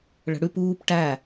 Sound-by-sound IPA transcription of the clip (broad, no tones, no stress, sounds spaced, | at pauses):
ɭ ə̤ ɽ ʉ p uː p ʈ æ